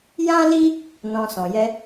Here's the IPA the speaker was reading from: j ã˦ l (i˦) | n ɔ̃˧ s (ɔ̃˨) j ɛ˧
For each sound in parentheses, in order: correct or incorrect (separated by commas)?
correct, correct